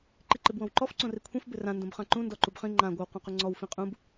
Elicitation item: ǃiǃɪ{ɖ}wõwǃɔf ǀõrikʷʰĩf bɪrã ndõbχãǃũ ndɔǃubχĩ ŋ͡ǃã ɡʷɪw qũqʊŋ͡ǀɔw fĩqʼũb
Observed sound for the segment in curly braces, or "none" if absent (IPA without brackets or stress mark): b